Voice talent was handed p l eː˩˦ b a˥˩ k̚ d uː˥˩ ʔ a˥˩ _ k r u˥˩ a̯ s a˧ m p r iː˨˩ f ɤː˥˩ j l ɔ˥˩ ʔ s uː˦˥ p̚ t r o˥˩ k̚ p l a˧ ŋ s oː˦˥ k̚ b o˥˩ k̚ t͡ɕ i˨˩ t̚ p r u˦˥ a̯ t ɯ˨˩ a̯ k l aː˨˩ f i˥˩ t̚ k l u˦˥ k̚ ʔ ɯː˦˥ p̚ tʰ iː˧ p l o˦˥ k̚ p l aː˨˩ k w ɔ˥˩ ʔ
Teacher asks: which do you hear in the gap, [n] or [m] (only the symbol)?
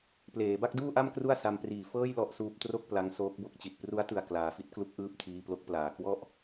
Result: m